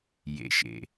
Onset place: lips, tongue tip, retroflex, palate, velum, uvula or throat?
palate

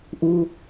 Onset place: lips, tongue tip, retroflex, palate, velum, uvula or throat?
throat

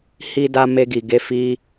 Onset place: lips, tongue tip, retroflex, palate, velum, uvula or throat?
throat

